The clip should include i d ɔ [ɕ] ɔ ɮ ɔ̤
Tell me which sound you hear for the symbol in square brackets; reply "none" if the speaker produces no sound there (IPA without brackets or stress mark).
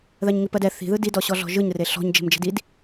ɕ